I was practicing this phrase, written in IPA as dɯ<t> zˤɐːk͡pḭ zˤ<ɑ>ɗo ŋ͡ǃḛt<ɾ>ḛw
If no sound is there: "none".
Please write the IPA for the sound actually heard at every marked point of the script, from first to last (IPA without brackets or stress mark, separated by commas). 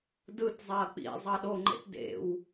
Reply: t, ɑ, d